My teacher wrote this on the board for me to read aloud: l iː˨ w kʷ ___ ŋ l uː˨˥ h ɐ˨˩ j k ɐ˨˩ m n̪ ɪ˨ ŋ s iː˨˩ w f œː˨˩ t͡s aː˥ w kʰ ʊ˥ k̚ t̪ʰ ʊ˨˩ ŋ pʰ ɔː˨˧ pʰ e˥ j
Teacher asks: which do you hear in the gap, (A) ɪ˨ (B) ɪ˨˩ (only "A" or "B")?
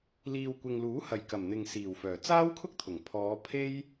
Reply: A